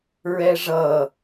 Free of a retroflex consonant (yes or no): no